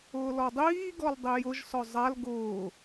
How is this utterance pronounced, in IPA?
ʊː l ɔ dˤ iː ɡ ɔ l dˤ i j ʊ ʒ s ɔ zˤ a l ɡ ʊː

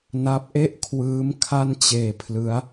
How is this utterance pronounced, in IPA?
n a˦˥ p̚ ʔ e˥˩ ʔ kʰ w ɯː˦˥ m kʰ a˥˩ n t͡ɕ eː˧ pʰ l ɯ˦˥ a̯

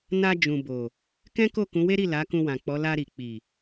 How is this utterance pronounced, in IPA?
n a˧ d͡ʒ ũ˨ b o˨ | k ɛ̃˦ k o˦˨ k ũ˨˦ w e˦ ɾ i˦˨ l a˨˦ k ũ˧ w ã˨ k͡p ɔ˨˦ l a˧ ɾ i˨ k͡p i˨

